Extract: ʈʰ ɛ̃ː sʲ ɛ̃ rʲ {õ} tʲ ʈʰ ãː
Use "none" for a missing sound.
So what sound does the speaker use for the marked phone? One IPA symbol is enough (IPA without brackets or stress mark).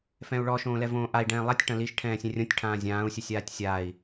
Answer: õ